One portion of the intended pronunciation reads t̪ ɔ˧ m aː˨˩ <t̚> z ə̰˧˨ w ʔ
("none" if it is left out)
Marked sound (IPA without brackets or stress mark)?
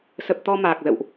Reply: k̚